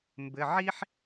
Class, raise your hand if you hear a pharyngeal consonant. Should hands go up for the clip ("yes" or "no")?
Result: yes